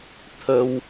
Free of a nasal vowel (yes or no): yes